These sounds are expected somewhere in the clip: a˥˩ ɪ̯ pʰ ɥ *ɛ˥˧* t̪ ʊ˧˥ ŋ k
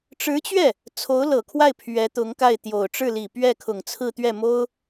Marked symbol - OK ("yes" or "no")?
no